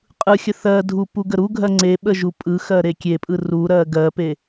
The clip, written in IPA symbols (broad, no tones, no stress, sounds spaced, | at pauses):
qʼ ɯ xʲ ə θ ɜ dʱ u p u ɡ ə ɾ u ɡʱ ɜ ŋ͡ǀ e ɓ ə ʒ u pʼ ɯ x ɜ ɾ e kʲ e pʼ ɯ r u ɾ ɜ ɡ ɜ p e